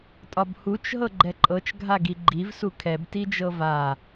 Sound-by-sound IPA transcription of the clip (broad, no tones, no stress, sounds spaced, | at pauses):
tʼ ɒ b h u t͡ʃ ɦ ɤ ɡ͡ǃ ɛ ǃʼ ɤ t͡ʃ ɡʱ a ɡ i ɡ͡ǃ i v s u kʰ ɛ b t i d͡ʒ ɤ v a